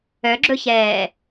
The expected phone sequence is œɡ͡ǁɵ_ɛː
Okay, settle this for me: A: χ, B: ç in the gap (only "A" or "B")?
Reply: B